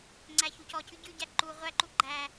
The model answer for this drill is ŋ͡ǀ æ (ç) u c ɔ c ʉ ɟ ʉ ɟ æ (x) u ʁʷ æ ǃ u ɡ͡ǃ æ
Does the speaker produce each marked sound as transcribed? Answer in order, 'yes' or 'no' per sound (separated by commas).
yes, no